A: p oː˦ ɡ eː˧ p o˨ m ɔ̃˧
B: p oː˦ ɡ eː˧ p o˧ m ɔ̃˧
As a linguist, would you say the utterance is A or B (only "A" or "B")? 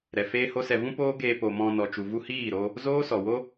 A